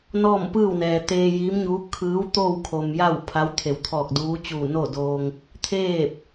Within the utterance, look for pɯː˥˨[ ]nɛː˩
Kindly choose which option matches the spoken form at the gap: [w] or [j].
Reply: w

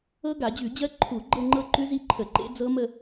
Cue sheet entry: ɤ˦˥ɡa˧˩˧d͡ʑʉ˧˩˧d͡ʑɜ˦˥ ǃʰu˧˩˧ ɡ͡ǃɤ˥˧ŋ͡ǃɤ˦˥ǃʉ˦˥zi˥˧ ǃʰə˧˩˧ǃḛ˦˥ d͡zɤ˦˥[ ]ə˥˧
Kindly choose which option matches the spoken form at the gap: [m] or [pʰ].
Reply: m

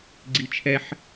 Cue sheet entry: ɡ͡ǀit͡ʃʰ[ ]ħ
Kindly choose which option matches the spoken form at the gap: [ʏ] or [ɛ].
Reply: ɛ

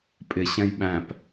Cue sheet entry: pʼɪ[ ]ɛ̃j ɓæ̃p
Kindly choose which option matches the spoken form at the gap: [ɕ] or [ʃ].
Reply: ɕ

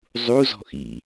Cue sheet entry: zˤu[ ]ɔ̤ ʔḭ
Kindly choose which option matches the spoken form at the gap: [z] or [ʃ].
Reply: z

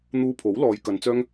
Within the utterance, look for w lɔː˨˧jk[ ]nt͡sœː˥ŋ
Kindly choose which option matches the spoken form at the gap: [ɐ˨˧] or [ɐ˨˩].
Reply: ɐ˨˧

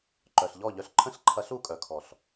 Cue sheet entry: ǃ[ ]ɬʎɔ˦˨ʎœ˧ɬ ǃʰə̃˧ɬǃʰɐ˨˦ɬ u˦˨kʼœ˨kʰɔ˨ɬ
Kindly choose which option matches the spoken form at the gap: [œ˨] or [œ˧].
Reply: œ˨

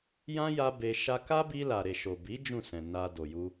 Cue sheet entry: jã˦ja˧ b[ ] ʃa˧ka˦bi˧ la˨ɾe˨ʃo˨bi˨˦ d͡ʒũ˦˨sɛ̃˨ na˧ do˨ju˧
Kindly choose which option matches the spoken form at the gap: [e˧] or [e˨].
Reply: e˧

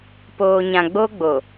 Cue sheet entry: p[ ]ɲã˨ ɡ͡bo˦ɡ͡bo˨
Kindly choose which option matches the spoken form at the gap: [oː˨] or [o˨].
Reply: oː˨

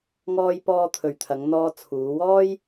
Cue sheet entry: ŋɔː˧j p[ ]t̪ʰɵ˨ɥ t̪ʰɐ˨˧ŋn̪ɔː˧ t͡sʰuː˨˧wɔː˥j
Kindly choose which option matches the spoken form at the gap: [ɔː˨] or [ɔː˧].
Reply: ɔː˧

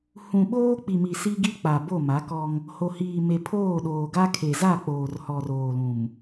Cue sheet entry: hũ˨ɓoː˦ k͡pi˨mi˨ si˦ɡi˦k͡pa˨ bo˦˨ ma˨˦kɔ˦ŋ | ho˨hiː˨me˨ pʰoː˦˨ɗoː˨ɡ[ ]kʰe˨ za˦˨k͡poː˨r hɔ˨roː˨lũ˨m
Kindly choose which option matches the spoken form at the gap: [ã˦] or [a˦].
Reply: a˦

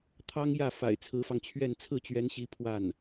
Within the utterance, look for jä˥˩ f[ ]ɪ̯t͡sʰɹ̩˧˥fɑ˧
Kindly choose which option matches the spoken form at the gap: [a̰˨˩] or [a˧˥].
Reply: a̰˨˩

